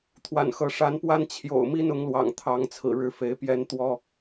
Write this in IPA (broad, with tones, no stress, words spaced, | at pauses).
t̪ʰwa̰˨˩nxɤ˨˦ ʂa˨˦npwa˦n t͡ɕʰjo̰˨˩ʊ̯mi˦n ʊ˨˦ŋlwɑ̰˨˩ŋt̪ʰɑ˨˦ŋ t͡sʰɹ̩˨˩ɻɻ̩˥˨fe˨˦ɪ̯ pjɛ˦n t̪wɔ˦